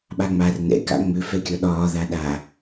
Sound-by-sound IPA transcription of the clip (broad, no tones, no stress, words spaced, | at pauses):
ɓaŋ͡mar nɛ̰ ka̰ŋ͡mʏ fɛkʲɒɗɒː ðaɗa